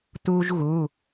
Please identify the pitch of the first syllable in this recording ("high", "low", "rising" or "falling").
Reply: high